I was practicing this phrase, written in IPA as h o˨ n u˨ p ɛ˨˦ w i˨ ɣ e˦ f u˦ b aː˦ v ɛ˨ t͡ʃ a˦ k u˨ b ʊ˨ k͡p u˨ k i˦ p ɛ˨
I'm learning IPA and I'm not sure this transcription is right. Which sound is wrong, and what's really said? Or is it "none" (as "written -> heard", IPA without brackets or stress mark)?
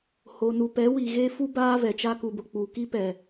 none